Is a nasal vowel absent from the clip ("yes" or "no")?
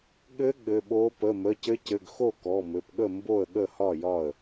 yes